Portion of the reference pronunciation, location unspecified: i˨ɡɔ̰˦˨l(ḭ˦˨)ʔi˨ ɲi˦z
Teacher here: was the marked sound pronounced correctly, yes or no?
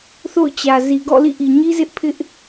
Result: yes